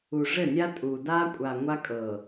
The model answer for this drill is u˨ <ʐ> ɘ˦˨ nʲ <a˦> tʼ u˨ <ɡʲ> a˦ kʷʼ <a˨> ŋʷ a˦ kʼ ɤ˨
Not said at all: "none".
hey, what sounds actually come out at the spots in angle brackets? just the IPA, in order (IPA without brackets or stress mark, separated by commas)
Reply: ʐ, a˦, d, a˨